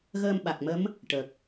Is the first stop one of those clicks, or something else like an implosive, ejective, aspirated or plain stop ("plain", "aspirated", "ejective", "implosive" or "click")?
implosive